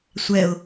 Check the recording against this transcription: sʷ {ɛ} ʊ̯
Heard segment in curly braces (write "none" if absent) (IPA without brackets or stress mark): ɛ